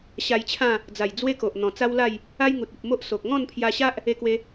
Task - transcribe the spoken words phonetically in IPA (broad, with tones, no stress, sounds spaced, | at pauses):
ɕ a˧ j t͡ɕʰ ã˥˧ | d͡z a˨˩ j d͡z w e˦ k o˨ ʔ n̪ ɔ̃˨˩ t͡s a˦ w l a˥˧ j | a˦ j ŋ u˨ t̚ i˨ p̚ m o˦ ʔ s o˨ k̚ ŋ ɔ̃˥˧ n pʰ j a˧ ɕ a˦ ʔ | e˧ k w e˧